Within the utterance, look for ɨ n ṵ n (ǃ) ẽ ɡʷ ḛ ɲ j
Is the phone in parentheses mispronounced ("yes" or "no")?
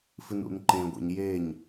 no